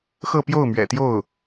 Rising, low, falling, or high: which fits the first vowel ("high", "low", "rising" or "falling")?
falling